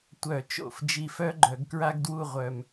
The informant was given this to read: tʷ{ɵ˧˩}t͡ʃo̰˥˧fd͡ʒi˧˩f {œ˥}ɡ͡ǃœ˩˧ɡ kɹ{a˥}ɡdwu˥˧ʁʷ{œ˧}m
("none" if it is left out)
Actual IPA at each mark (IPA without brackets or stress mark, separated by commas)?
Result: œ˧˩, œ˥, a˥, œ˧